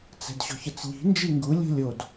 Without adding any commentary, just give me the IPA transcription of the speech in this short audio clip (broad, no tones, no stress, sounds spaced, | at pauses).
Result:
t͡s ɛ̤ d ɕ ɔ̤ ç ə t͡s ʎ i̤ n d͡ʒ i ŋ ɡ u lʲ o̤ lʲ o d